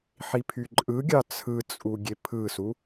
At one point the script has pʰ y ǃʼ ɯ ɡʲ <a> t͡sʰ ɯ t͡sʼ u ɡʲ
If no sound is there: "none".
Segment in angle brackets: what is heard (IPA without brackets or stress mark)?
ɑ